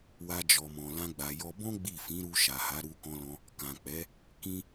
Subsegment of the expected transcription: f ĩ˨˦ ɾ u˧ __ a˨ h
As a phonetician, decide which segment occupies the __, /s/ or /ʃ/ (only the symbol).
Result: ʃ